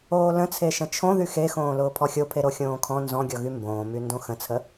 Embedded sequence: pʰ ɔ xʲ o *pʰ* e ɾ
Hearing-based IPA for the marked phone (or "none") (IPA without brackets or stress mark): pʰ